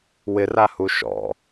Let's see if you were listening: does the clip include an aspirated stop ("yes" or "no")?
no